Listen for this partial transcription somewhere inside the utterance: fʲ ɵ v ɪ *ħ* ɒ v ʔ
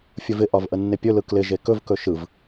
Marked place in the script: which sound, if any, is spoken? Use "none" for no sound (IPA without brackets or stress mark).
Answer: ʔ